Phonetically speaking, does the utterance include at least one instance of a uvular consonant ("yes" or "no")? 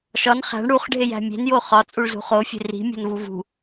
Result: yes